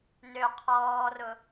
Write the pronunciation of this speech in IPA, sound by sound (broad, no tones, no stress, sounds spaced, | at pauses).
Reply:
n ø qʰ ɔː r ʊ